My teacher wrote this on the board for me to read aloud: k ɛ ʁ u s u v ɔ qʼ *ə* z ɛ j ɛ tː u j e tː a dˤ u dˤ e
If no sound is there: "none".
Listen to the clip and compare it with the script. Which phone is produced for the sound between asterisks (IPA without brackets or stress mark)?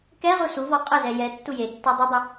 ə